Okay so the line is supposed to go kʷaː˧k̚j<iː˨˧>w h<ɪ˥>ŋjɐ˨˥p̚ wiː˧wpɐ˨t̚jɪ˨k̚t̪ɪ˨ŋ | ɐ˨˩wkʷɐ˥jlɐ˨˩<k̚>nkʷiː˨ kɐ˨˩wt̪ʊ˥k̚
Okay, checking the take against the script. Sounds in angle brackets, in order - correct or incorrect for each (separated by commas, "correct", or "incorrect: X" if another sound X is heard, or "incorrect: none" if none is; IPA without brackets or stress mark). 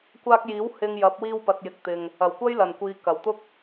incorrect: iː˨˥, incorrect: ɪ˧, incorrect: none